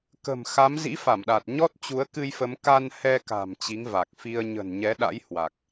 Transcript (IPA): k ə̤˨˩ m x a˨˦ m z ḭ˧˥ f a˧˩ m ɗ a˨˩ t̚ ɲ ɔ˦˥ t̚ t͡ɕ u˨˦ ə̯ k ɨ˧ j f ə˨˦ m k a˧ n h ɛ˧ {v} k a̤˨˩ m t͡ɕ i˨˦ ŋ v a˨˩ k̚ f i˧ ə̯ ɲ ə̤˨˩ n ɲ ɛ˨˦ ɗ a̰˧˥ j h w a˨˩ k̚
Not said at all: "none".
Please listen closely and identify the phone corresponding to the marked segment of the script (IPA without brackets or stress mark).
none